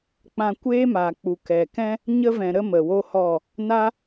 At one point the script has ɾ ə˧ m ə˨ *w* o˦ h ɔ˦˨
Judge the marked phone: correct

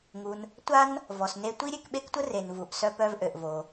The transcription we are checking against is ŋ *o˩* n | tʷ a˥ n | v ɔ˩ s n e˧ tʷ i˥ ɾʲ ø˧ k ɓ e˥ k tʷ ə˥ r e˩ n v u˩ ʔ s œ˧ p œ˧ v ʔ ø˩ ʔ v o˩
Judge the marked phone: incorrect: u˩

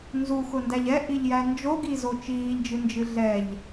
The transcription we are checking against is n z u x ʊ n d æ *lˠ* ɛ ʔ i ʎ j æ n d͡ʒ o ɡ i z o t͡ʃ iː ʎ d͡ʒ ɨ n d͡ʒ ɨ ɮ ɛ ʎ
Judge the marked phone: incorrect: ʎ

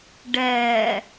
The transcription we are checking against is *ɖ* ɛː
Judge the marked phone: correct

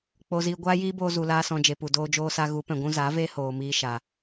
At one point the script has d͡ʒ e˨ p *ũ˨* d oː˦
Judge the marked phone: incorrect: u˨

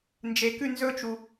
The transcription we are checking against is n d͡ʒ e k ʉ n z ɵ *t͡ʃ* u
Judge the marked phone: correct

